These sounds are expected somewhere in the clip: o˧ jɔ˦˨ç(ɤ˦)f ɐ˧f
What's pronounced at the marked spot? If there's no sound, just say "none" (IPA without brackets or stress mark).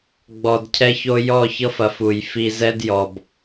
ɤ˦